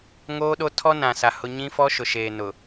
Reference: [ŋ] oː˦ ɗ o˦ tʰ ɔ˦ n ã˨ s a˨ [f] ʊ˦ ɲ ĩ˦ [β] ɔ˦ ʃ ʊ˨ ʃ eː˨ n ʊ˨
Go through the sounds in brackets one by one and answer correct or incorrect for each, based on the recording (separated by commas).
correct, incorrect, incorrect